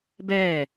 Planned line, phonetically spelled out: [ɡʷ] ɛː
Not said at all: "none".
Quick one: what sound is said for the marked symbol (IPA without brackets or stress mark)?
b